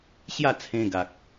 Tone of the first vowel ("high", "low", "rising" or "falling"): falling